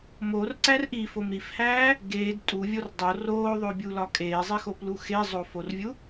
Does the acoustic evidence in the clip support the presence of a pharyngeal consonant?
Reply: no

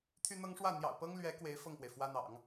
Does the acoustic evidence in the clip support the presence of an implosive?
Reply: no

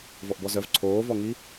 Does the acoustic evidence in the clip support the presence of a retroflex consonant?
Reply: no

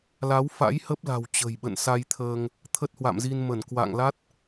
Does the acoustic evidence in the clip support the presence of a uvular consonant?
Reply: no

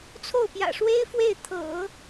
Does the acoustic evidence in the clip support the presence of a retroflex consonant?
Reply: yes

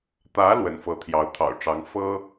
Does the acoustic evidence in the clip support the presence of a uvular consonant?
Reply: no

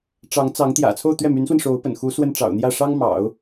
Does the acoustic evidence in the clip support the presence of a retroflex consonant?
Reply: yes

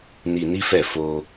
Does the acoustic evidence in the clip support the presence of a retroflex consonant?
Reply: no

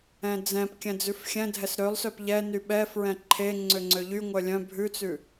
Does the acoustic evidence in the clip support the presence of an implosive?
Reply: yes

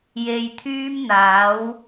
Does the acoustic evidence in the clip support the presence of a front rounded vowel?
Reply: yes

